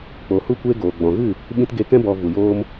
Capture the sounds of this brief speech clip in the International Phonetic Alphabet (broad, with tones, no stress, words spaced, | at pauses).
k͡po˨hu˦kʷe˦ɡoː˨ ɡ͡bɔ̃˨ɣɨ˦˨ | ɓĩ˧tɡe˧kɛ̃˦ bɔ˧ vu˨joː˦m